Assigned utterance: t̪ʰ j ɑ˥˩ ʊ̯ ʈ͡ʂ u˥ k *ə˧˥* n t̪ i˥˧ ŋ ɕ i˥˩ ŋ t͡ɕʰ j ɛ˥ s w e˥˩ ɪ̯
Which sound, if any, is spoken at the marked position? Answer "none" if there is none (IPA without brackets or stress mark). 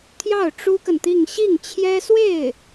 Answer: ə˨